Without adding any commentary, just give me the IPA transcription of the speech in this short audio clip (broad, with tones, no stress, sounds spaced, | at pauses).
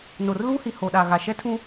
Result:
n o˨ r l uː˦ h i˨ h o˨ ɗ a˨ ɣ a˨ ʃ ɛ˦ tʰ ũ˦